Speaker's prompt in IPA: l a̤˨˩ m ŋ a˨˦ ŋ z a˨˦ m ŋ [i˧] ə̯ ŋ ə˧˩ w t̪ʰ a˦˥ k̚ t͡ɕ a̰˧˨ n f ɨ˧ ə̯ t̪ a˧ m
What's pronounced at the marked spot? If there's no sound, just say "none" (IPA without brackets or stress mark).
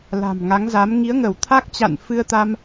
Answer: i˨˦